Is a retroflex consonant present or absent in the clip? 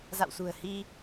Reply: absent